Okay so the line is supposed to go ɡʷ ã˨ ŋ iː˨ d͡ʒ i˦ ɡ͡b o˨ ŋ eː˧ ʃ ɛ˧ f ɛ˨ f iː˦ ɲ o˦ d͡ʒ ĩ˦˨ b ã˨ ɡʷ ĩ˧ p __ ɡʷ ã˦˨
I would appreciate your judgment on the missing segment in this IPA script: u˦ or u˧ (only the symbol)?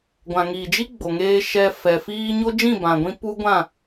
u˦